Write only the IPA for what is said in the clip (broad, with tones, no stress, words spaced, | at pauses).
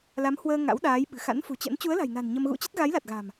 la˨˦mhwəː˧ ŋa̰˧˥wɗaː˨˦jɓɨ̤˨˩ xa̰˧˥nfṳ˨˩t͡ɕə̰˧˥n t͡ɕu˨˦ə̯la̤˨˩jna̤˨˩n ɲə˧m ɣṵ˧˥t͡ɕə˦˥t̚ ɣa˨˦jla˨˩t̚ɣa̤˨˩m